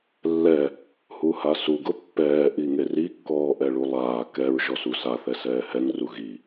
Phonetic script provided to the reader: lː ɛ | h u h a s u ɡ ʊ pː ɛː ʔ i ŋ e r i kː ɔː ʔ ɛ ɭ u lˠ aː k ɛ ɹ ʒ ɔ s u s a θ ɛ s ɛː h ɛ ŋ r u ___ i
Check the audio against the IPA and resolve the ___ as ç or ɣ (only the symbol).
ɣ